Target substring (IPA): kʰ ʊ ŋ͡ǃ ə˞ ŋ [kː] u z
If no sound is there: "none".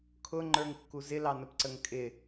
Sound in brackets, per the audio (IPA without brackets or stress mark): kː